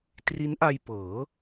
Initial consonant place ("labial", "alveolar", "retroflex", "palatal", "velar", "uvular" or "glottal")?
alveolar